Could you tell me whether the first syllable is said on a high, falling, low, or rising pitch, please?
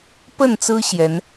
falling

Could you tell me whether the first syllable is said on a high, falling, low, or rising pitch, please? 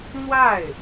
falling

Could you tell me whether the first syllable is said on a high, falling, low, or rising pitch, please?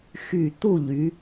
falling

